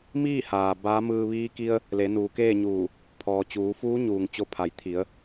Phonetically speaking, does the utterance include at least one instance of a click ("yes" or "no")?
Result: no